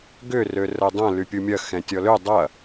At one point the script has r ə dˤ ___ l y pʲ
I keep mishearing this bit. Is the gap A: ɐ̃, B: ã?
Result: A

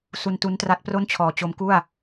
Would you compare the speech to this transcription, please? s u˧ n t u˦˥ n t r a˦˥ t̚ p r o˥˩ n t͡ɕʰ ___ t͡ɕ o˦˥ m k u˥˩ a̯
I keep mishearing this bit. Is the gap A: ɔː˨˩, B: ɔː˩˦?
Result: A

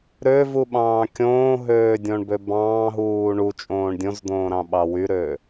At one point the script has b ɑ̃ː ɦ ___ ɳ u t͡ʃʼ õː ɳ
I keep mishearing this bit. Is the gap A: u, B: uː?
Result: B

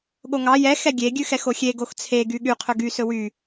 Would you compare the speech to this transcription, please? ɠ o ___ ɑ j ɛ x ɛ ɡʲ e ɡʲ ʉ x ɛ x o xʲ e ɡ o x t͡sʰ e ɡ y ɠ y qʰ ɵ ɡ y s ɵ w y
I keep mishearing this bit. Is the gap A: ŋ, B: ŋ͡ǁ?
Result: A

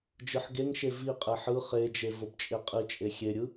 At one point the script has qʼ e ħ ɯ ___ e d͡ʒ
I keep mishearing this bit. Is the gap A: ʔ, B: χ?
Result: B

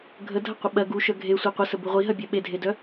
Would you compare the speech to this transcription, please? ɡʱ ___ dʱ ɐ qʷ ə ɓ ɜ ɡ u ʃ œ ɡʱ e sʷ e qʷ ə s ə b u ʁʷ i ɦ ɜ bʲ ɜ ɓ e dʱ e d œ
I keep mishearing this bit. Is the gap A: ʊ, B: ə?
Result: B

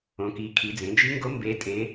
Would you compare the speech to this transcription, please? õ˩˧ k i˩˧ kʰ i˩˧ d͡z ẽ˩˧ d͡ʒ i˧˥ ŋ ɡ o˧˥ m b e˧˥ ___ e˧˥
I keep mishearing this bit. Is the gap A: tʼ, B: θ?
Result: A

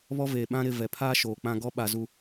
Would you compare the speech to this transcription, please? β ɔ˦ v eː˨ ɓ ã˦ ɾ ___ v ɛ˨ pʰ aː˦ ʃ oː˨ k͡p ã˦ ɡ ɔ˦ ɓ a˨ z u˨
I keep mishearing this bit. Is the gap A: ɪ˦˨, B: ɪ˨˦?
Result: A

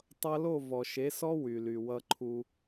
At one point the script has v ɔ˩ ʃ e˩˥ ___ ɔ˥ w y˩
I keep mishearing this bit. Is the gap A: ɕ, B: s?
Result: B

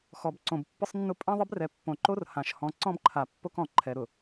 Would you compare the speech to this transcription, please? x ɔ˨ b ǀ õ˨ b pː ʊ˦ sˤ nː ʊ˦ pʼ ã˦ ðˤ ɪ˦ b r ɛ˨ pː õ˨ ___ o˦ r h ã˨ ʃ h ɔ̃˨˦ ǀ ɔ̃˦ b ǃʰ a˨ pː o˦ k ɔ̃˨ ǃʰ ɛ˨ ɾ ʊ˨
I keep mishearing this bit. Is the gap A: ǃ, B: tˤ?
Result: A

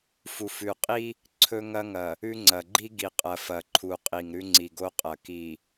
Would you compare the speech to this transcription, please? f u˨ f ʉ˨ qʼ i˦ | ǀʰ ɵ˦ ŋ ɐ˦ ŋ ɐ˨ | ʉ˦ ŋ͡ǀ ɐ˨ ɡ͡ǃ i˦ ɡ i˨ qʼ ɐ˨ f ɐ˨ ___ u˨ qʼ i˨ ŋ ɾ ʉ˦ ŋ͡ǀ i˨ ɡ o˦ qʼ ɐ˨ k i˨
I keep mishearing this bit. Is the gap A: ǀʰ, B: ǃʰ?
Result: B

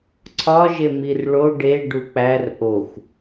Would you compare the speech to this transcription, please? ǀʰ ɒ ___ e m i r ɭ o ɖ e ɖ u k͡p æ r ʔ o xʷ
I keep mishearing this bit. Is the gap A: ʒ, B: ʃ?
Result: A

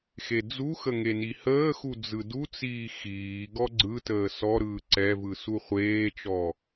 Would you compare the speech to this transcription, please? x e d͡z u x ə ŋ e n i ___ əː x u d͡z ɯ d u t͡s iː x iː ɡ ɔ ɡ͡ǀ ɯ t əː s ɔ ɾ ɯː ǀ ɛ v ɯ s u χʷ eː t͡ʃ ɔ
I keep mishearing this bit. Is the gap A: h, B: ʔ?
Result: A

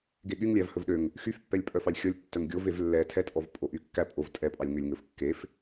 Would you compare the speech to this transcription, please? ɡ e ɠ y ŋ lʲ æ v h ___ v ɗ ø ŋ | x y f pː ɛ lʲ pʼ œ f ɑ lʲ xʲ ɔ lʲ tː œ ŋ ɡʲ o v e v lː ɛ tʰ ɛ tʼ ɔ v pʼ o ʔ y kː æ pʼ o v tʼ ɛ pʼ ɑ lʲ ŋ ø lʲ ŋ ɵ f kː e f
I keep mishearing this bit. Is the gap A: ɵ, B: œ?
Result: A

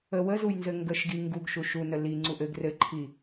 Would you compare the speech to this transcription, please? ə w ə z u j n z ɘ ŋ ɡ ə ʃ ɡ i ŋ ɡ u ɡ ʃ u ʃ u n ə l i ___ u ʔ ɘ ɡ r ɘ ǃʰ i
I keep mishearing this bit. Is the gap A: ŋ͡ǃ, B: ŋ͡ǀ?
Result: B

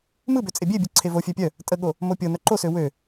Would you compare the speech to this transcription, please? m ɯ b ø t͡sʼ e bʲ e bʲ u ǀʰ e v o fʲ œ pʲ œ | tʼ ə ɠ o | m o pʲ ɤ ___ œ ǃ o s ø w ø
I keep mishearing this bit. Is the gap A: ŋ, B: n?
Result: B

